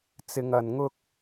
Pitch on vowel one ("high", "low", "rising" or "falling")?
high